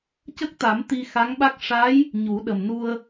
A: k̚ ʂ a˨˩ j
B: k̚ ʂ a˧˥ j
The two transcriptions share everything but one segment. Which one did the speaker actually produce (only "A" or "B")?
B